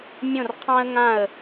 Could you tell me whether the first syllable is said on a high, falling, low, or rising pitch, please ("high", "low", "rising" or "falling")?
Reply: falling